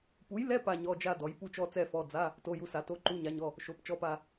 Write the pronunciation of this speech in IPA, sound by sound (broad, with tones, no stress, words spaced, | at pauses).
pu˨˥jlɛ˧˥˧ pa˥˧ɲɔ˧˥˧d͡ʒa˥˧ dɔ˨˥j pu˥˧t͡ʃɔ˥˧t͡sɛ˥˧fɔ˧˥˧ d͡za˧˥˧ | to˧˥˧ju˧˥˧sa˨˥ to˧˥˧ǃu˧˥˧ɲa˨˥ɲɔ˧˥˧ | ʃo˨˥pt͡ʃɔ˧˥˧pa˥˧